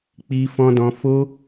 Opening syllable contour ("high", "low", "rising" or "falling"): high